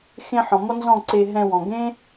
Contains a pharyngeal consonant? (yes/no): yes